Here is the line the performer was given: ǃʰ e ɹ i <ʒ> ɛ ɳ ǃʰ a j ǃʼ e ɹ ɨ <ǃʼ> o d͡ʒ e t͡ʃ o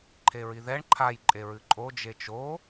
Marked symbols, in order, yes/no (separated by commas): no, yes